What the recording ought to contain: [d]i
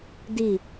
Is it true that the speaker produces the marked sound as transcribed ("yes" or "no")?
yes